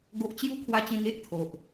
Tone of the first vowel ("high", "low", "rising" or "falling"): high